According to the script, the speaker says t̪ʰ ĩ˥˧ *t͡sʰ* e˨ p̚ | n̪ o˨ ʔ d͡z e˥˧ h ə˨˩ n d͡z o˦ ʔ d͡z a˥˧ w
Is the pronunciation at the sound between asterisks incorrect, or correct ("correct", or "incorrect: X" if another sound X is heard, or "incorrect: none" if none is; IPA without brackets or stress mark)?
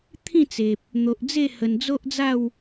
incorrect: t͡s